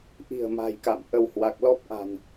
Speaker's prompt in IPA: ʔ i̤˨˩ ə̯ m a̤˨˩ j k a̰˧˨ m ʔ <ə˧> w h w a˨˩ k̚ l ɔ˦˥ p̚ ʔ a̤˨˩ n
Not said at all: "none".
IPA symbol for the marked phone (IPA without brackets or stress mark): ə˧